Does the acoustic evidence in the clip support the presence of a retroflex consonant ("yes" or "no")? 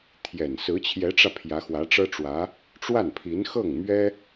yes